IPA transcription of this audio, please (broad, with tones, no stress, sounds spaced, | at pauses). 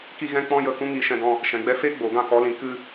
k i˦ ɣ ɛ̃˦ k͡p ɔ̃˦ j ə˦˨ k ũ˦ ŋ i˧ ʃ ɛ̃˧ ɡ ɔ̃˧ | ʃ ɛ̃˨ ɡ͡b ɛ˧ f eː˦ ɡ͡b oː˨ ɡ ã˦˨ k ɔ˨˦ l ĩ˨ k ɨ˧